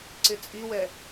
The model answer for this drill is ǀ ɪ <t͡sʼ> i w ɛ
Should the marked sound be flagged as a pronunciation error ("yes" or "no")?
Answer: no